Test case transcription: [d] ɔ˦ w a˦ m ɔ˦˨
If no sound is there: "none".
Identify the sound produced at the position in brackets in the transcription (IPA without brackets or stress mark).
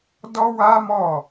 d